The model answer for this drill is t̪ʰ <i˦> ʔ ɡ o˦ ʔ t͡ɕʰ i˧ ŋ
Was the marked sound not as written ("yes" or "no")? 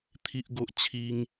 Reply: no